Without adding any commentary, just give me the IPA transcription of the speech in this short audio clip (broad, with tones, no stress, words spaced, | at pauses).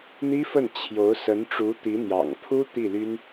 n̪i˥fə˥˩n t͡ɕʰjo˧˥ʊ̯ sə˧˥nʈ͡ʂu˧˥ t̪i˧˥n̪jɑ̰˨˩ŋpʰu˥ t̪i˥˩ly˥n